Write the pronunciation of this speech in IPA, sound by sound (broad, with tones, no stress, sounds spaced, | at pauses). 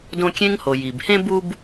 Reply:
d õ˦ kʲ ẽ˥ ŋ h o˨ j i˩ b h ẽ˦ b u˦ b